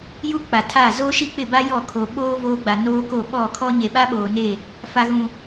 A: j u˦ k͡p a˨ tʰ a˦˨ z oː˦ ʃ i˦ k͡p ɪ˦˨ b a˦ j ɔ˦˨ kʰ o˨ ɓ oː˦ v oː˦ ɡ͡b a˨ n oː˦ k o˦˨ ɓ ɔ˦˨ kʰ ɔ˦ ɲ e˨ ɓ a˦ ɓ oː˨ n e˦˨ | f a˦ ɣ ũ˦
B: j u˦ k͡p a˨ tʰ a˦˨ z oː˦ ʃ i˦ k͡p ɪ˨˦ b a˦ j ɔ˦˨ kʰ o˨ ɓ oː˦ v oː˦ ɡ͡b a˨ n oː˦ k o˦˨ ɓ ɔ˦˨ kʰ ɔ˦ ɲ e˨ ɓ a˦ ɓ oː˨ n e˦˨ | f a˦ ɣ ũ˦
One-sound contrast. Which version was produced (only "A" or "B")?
A